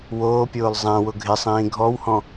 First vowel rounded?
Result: yes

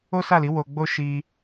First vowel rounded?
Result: yes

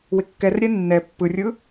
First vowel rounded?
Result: no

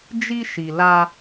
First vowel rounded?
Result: no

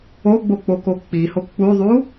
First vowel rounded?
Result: yes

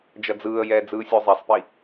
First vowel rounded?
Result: no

